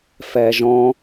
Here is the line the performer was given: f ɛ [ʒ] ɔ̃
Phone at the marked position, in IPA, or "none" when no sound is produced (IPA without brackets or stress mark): ʒ